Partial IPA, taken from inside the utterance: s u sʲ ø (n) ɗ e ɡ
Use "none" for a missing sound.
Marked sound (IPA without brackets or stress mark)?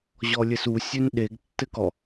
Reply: n